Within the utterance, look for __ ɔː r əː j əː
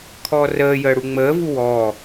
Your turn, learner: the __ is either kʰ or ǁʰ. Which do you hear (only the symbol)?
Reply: kʰ